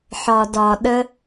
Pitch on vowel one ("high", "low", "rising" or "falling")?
low